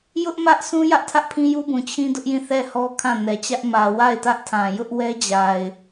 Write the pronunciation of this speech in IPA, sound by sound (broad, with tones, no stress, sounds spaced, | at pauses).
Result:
j ʊ˦ ʔ m ä˦ ʔ s ũ˦ j ä˦ ʔ tʰ ä˦ ʔ pʰ ĩ˦ j u˦ b ũ˨ t͡ɕʰ ĩ˦ d ʊ˦ ʔ j ĩ˦˨ θ ɛ˦˨ h ɔ˦ kʰ ã˦˨ n ɛ˨ t͡ɕ ä˦ ʔ m ä˨ w a˦˨ ɪ̯ t ä˦ ʔ tʰ ã˨ j ʊ˦ ʔ w ɛ˦ d͡ʑ a˨ ɪ̯